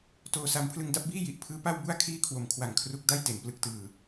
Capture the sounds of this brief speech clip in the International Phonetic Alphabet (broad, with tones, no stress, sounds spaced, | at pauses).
t oː˧ s a˧ m pʰ l ɯ˧ ŋ d a˦˥ p̚ b iː˥˩ j i˨˩ ʔ pʰ ɯː˦˥ p a˥˩ w b u˥˩ a̯ kʰ iː˥˩ kʰ w o˨˩ m kʰ w a˨˩ ŋ kʰ r u˦˥ k̚ d a˥˩ j t e˩˦ n p l ɯ˨˩ k̚ t ɯː˨˩